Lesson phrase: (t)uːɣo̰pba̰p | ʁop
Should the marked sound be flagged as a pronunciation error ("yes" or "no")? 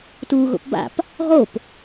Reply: no